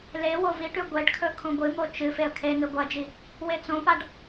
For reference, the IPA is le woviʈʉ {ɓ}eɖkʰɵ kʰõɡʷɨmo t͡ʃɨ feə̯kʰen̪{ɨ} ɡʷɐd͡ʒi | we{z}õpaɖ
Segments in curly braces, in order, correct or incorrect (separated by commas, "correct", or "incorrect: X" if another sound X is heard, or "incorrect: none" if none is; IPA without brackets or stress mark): incorrect: ɡʷ, correct, incorrect: t͡s